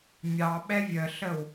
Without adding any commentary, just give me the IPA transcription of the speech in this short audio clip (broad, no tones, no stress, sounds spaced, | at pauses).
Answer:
mʲ ɑ ɓ ɛ vʲ ə ɬ ə w